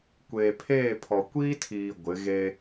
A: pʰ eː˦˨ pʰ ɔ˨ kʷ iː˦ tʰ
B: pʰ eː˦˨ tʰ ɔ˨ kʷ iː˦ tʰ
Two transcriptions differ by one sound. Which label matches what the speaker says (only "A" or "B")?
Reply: A